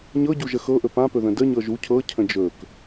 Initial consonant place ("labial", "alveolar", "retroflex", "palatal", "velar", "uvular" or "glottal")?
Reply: palatal